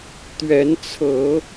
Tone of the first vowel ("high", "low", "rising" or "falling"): rising